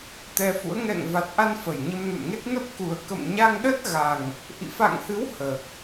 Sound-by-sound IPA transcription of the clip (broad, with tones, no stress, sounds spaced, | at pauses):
t̪ ɛ˧ f ṵ˧˥ ə̯ ŋ ɛ̰˧˨ ŋ v a˨˩ t̚ ʔ a˧ n f ə˨˩ j ɲ ə˧ m n ṵ˧˨ n ŋ e˦˥ t̚ n ə˦˥ p̚ k u˨˩ ə̯ k ə̰˧˨ m ɲ a˧ ŋ ɗ ə˦˥ t̚ ɣ a˨˩ ŋ | ʔ ḭ˧˨ f a̰˧˨ ŋ h ɨ˨˦ w h əː˨˩ k̚